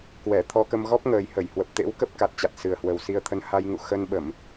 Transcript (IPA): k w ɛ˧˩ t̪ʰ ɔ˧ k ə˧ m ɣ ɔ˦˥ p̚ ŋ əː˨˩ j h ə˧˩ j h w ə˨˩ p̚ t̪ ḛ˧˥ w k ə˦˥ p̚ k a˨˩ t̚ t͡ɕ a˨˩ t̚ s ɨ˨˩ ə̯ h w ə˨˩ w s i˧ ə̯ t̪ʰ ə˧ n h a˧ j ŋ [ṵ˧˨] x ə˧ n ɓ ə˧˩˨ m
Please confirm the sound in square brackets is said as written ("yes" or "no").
yes